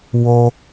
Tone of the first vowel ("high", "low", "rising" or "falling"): high